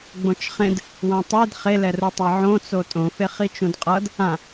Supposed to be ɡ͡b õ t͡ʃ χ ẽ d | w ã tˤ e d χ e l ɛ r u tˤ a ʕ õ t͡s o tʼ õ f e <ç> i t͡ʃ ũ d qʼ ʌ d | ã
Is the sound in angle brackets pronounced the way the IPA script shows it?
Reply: no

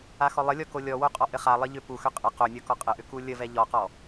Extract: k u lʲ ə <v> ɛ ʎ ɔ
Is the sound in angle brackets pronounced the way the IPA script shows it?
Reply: yes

